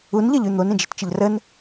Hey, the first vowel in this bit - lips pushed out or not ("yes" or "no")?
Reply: yes